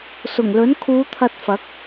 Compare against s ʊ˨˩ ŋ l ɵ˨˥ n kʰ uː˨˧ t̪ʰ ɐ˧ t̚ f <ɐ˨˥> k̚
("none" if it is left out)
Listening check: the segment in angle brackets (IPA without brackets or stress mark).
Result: ɐ˨˥